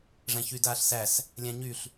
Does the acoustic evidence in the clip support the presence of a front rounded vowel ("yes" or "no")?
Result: yes